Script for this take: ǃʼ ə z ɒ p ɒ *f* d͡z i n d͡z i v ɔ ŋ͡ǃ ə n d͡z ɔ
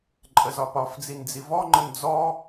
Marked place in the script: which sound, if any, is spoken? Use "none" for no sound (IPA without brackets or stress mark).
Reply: f